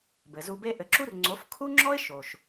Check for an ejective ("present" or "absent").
absent